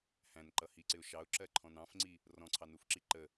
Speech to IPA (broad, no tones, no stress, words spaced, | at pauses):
hæ̃nǃʌhiǀɪʊ̯ ʃɑʊ̯ǁɜǃʰɔ̃n ɑ̃fŋ͡ǀi | rɔ̃ǀʰɑnufǁi ǃə